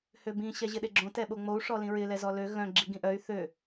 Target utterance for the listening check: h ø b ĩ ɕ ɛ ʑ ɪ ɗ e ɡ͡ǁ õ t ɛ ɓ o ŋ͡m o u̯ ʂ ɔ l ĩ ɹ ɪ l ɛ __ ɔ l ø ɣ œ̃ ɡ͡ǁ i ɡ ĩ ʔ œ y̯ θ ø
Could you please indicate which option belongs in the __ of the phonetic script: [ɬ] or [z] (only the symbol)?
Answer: z